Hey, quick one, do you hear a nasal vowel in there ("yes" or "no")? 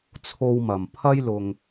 no